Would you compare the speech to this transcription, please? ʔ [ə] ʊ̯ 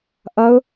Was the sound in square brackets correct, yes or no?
no